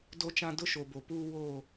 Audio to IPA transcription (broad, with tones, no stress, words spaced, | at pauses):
do˦t͡ʃã˦ dʊ˦ʃo˨bo˨ puː˦ woː˦˨